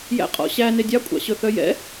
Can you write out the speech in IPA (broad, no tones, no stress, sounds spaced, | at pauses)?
j æ̰ qʼ ɔ̰ ɕ æ n e dʲ ɑ kʷʼ ɑ̰ ɕ ɵ θ œ j ɛ̰